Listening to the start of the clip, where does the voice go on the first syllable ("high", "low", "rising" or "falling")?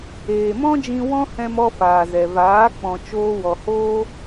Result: low